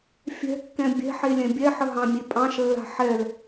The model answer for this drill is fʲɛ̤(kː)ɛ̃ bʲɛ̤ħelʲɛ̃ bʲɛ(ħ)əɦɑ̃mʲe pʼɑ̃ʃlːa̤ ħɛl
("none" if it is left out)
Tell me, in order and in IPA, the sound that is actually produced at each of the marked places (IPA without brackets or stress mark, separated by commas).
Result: kː, ħ